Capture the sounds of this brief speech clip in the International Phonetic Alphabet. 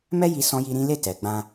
mɛ˦ ji˧ sɔ̃˦ji˦ɾĩ˦ le˦˨tɛ˨ɡ͡bã˧

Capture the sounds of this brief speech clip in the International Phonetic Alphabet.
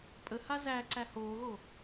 pʼəha zæ ǀæhoːɣo

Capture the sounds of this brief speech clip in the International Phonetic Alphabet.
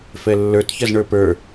fɛlːə˞t çɐzɳə˞pə˞

